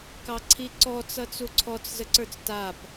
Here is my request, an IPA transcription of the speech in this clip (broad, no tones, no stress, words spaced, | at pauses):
kɑǀʰiǀɔ t͡sʌt͡suǀʰɔt͡s zəǀə˞t͡stap